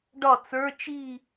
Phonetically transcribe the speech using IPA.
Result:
ɖ ɒ t͡s ə˞ t͡ʃ i

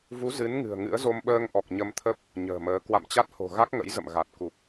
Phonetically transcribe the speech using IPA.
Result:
v u˨˦ z ɨ˨˦ n ŋ ɨ̤˨˩ ə̯ ŋ ɨ̰˧˥ ə̯ z o˧ m ɓ əː˧ ŋ ʔ ɔ˨˩ k̚ ɲ ə˧ m t̪ʰ ə˦˥ p̚ | ɲ ə̤ː˨˩ m əː˨˦ k w a̰˧˨ m t͡ɕ a˦˥ t̚ h o̤˨˩ ɣ a˦˥ k̚ ŋ ə̰˧˥ j z ə̰˧˨ m ɣ a˨˩ t̚ k u˨˩ k̚

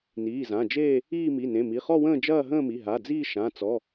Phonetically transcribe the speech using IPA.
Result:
n iː˩˧˩ z ã˩˧˩ d͡ʒ eː˥˧ | iː˥˧ m i˩˧˩ n ẽ˩˧˩ m i˩˧˩ χ ɔ˥˧ w ə̃ː˥˧ d͡ʒ ɐː˥˧ ɦ ə̃ː˥˧ m i˩˧˩ ɦ a˩˧˩ d͡z iː˥˧ ʃ ã˩˧˩ t͡s ɔ˩˧˩

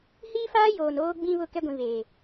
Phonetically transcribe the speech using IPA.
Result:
h iː˦ f aː˦ j oː˨ n oː˦ ɡ͡b ĩ˦ β ʊ˦˨ k ɛ˦ ɡʷ ĩ˨ β eː˨

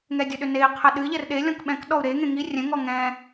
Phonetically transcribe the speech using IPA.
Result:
ŋ ɛ dʲ ʊ ɗ ʏ n e i̯ qʰ ə ɗ ɨ ʎ ɛ r ɗ e lʲ ɔ̃ k ɓ ɛ̃ k ɗ ɔ u̯ ɾ e ŋ ẽ ŋ i rʲ ɛ̃ ŋ ɔ ŋ ɛ̃

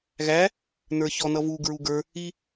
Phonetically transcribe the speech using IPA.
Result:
ɣ æ | n ə˞ ç ɔ n ʌ v u ɡ ɹ u ɡ ə˞ | i

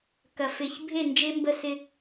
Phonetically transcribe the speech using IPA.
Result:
k ɐ˨ f ɪ˨ ç bʱ e˦˨ n d͡ʒ e˦ m b ə˦˨ s ɪ˦

